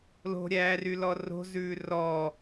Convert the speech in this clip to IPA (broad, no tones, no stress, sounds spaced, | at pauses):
l o̤ ɾʲ æː r y l ɔ r o̤ z ʉː r ɔ